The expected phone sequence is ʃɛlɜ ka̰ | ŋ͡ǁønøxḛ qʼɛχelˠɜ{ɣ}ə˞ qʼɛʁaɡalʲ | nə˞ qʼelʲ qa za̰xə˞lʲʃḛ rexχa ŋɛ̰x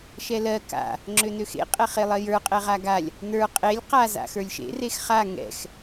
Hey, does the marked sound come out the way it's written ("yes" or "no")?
no